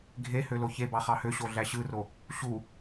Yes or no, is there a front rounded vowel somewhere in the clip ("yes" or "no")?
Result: yes